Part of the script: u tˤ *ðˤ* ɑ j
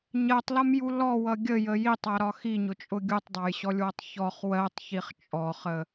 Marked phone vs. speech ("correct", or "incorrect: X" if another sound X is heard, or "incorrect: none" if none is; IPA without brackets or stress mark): incorrect: dˤ